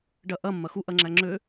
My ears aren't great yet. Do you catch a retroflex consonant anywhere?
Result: yes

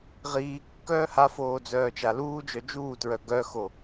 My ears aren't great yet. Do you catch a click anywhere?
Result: no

